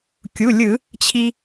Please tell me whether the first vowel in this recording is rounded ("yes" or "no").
yes